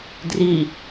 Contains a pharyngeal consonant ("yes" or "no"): no